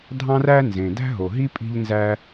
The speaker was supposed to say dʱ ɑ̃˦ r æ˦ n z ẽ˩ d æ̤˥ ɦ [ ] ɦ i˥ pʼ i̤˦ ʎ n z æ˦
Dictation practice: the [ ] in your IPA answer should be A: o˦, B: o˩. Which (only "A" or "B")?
B